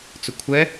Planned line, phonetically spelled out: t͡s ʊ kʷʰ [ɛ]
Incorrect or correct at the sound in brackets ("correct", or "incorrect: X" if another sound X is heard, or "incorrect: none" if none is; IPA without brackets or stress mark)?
correct